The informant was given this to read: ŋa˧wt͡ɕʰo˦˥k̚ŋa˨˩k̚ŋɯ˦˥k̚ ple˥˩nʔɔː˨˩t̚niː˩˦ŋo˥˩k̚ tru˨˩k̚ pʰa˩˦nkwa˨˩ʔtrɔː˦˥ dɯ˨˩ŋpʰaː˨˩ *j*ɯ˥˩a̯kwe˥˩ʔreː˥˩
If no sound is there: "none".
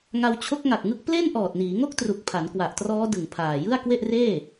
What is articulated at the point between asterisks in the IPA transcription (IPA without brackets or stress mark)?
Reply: j